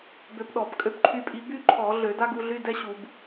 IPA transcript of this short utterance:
b ø˧ p ɗ ɔ˧˩˧ b kʼ ø˧ p ǃʰ y˧ pʼ i˧ b y˥ ǃʰ ɔ˧˩˧ ɮ ø˧˩˧ d a˥ ɡ u˧ ɮ y˧˥˧ d ɛ˥ ɕ u˧˩˧ b

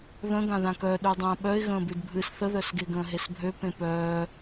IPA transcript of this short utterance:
ð ə̃ ɡ ã ð ã k œ ɗ ʉ dˤ ə̃ː ɓ œ ɪ̯ ɣ ə̃ː b ʉ d bʱ ɨ s θ ə ð œ s ɡ e ɡ ə̃ː ɦ e s bʱ ø p ẽ p œː

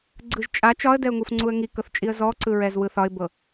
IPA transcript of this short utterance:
ɡ͡ǀ ɯ ʒ t͡ʃʼ a t͡ʃ ɒ ə̯ d ɛ ʊ̯ ŋ u f ŋ͡ǀ u ə̯ ŋ i k ɤ θ t͡ʃʼ i ə̯ z ɔ ǀ ɯ ɹ ɛ z w ɯ θ ɒ ɪ̯ b ɤ

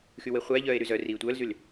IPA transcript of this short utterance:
x y w e χʷ æ ʎ œː e̯ ɾ y z œ r iː tʷ œː l z y l

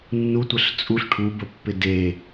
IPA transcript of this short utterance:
nː u tʷ ə ɬ t͡sʼ u ɬ ʈʰ u b ə pː ɪ d e

